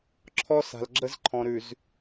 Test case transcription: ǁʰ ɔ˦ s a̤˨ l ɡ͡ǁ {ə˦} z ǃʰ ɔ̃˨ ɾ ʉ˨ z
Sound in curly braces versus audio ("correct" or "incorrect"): correct